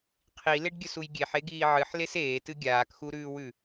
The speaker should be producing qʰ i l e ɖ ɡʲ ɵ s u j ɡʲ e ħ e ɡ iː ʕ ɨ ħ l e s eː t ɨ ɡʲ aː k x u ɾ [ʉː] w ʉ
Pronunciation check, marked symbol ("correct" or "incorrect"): correct